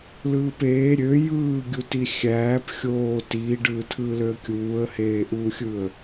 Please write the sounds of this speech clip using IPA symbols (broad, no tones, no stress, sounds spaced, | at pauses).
l ɯː p eː ɾʲ ø j ɯː ɡʲ u t i xʲ æː p xʲ oː t iː ɖ ɯː tʰ ɯː l ø ə̯ kʲ uː ə̯ h eː ʔ uː xʲ ɯ ə̯